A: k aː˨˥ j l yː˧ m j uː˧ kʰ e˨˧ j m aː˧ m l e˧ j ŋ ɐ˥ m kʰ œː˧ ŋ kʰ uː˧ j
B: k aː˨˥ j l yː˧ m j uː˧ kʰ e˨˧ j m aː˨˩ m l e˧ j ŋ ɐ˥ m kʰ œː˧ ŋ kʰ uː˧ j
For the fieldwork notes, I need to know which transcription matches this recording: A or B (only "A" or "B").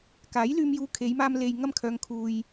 A